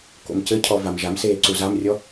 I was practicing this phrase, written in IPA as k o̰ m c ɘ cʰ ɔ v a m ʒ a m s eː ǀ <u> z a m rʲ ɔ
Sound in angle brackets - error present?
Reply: no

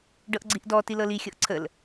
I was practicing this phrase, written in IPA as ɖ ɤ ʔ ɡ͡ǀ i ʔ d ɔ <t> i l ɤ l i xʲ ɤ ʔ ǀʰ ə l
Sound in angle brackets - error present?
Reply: no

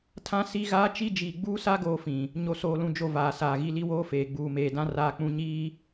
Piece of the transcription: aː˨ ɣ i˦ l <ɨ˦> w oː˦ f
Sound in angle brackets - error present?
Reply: yes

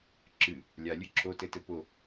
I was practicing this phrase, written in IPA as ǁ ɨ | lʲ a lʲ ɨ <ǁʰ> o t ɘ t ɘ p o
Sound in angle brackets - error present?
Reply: no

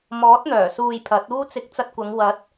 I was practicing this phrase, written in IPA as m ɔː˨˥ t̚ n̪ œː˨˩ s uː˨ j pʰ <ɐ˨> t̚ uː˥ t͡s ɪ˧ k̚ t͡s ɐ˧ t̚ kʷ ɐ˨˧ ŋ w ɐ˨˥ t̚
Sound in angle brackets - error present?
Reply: yes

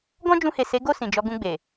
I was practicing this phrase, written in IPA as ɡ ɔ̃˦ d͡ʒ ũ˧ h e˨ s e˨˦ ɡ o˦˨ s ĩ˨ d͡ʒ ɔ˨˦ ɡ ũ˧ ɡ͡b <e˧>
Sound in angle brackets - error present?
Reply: yes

